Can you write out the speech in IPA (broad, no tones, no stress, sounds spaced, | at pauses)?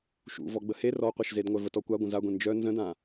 ʃ ṵ v ɔ ɡ͡b ə h e r ɔ qʷ œ ʃ z e d ŋʷ œ v ə t ɔ kʷ a ɡʷ ə̃ z a ɡʷ ẽ n d͡ʒ œ n z ə̃ d ã